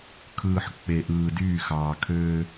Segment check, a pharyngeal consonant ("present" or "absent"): present